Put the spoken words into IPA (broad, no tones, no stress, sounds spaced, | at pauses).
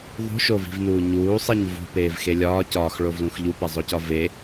ðˤ ṳ ʃ o v i̤ v n uː ɲ uː sˤ e ɲ v ṳ p eː v x e lʲ ɒː c ɒː x ɭ o v l ũ x ʎ u p e zˤ o c ɒ v e